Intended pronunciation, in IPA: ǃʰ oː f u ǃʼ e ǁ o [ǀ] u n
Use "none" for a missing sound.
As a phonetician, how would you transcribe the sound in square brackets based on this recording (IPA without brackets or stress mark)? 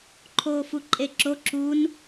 ǁ